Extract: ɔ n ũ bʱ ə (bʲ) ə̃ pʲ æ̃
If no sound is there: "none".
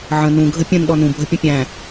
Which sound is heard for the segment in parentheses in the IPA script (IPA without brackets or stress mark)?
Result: pʲ